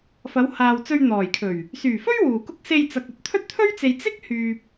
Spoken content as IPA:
f ɐ˨˧ w h aː˨ w t͡s ɵ˧ ɥ n̪ ɔː˨˩ j kʰ ɵ˨˩ ɥ | s yː˨˩ f ɵ˥ ɥ w uː˨˩ k ʊ˥ k̚ s e˧ j t͡s ɐ˨ k̚ ɵ˥ t̚ t̪ʰ ɵ˥ t̚ t̪ʰ ɵ˥ ɥ t͡s e˨ j t͡s ɪ˥ k̚ h yː˨ p̚

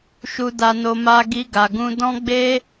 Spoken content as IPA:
ʃ u˧ d a˧ n o˧ m a˧ ɡ i˧ ɡ a˨ ɡ ũ˧ d ɔ̃˦ ɡ͡b e˦

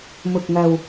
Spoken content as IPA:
m ʊ˨ k̚ ŋ ɐ˨ w

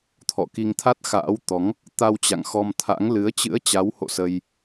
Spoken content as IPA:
t̪ʰ ɔ̰˧˨ k i˧ ŋ t̪ʰ a˦˥ t̚ x a̰ː˧˥ w t̪ ɔ˨˦ ŋ | t̪ a˧ w t͡ɕ a̰˧˨ ŋ x ɔ˧ m t̪ʰ a̰˧˥ ŋ l ɨ˨˦ ə̯ t͡ɕ ɨ̰˧˥ ə̯ t͡ɕ a˨˦ w h o̰˧˨ s ə˧ j

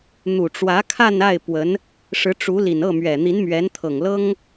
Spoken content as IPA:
n̪ u˨˩ ʈ͡ʂ w ä˧˥ kʰ a˥˧ n a˥˩ ɪ̯ p w ə˧˥ n | ʂ ɻ̩˧˥ ʈ͡ʂ u˧˥ l i˨˩ n ɤ˥˩ m ɥ ɛ˨˩ n̪ i˧˥ n m ɥ ɛ˧˥ n t̪ʰ ɤ˨˩ ŋ l ɤ˥ ŋ

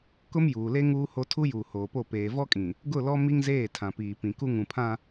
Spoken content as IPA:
k ʊ˦ m j uː˨ l e˦ ŋ uː˦ h o˦ tʰ u˦ j uː˨ h oː˨ p o˦˨ p eː˨ v ɔ˦ kʼ ĩ˨ | ɡ ʊ˦˨ l ɔ˦ m i˦ ŋ z eː˦˨ tʰ ã˨ p iː˨ p ĩ˨ k u˦ ŋ ũ˨ pʰ ã˦

